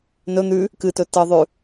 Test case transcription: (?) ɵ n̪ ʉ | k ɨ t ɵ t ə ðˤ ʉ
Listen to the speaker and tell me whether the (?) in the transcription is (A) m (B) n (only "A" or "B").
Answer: B